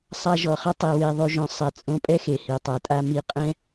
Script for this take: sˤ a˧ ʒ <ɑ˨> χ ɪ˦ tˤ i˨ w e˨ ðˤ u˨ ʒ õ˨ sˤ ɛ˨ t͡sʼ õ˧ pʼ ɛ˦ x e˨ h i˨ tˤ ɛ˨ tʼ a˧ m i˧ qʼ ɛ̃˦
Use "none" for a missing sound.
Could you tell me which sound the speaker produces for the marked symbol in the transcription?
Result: ɔ˨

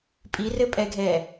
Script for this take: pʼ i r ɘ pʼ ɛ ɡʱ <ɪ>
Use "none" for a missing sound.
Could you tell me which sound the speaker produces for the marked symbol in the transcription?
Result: ɛ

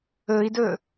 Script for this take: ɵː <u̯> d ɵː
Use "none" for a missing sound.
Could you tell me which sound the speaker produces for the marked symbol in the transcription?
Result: i̯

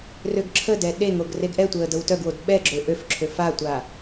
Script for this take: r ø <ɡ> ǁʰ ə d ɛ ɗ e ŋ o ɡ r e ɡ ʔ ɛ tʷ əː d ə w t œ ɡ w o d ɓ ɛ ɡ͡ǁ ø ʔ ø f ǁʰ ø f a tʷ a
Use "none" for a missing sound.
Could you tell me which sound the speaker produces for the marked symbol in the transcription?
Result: ɡ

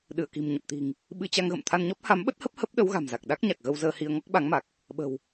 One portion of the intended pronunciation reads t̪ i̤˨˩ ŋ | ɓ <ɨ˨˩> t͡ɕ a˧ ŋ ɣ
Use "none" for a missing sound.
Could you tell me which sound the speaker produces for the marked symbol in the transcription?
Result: ɨ˧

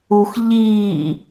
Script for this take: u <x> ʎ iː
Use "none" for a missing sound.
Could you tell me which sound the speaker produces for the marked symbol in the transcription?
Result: x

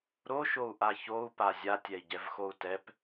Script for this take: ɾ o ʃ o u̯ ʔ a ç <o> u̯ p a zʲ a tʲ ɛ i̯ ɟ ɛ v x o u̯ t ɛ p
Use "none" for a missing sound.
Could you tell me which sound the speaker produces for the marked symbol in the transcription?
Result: o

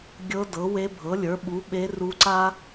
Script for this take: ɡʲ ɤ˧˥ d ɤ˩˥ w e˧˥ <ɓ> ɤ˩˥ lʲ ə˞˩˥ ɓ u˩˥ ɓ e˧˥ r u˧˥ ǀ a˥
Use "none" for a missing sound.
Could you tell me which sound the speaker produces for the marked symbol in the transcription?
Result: bʱ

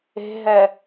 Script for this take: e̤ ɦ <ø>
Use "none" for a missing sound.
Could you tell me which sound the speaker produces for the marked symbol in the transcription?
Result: ɛ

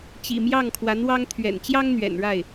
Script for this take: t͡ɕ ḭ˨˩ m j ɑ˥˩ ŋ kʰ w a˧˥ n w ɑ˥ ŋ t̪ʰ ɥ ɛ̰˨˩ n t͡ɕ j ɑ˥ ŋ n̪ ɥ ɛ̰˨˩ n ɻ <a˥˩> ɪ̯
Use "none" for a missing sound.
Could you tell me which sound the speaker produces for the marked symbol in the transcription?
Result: a˥˩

